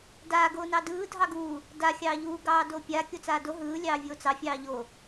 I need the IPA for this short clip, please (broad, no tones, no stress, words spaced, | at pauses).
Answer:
daː ɡoːnɑdɯː dʱɑɡuː | da xʲɑːʎuː ɡɑːdopʲa kʲot͡saːdo ɦɯː lʲɑːvʲoːt͡sɑ fʲɑːʎo